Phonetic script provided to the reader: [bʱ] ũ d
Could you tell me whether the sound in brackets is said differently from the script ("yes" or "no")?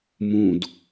yes